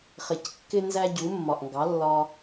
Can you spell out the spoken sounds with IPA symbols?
χ ɪ˩ c kː ɪ˥ n z æ˥ ɟ u˩˥ mː ɒ˩ ʔ ŋ ɡ ɑ˩˥ lː ɒ˧

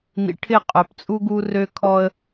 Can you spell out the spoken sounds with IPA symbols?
n̪ ḭ˨ ʈʰ ɪ˦˨ qʼ œ˨ p t͡sʼ u˦ ɡ u˦ r ø˦ kʰ ɔ˦ ə̯

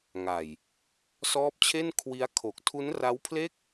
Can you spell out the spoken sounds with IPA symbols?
ŋ a˨˩ j | s ɔː˦˥ p̚ t͡ɕʰ e˥˩ n kʰ w i˦˥ a̯ kʰ o˨˩ k̚ tʰ u˦˥ n r a˦˥ w pʰ l e˥˩ k̚

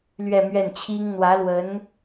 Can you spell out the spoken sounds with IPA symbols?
l ɥ ɛ˥˧ m ɥ ɛ˥˩ n t͡ɕʰ i˥ ŋ n̪ w ä˧˥ l w ə˧˥ n

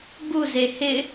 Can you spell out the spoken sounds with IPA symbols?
b u z e h ɪ

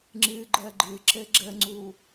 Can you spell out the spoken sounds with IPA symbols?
ŋ͡ǁ ɨ ɡ͡ǃ ɜ ɡ͡ǃ ɨ ǁ ɘ ɡ͡ǁ ə ŋ͡ǀ u

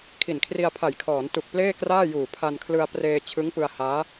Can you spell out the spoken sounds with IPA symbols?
kʰ i˨˩ n kʰ r i˧ a̯ pʰ a˨˩ j kʰ ɔː˩˦ n t u˨˩ k̚ p l eː˥˩ k r aː˥˩ j uː˨˩ pʰ a˧ n kʰ l ɯ˧ a̯ p r eː˧ t͡ɕʰ ɯ˦˥ ŋ p ɯ˧ a̯ h aː˦˥

